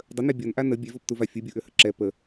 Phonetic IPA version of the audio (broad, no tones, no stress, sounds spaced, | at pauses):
dˤ ə n ɛ bʲ ɔ n ʔ a n ə bʲ ɛ v ɔ p t u v a fʲ u bʲ u ʔ ø h ə ǁ ɛ p ə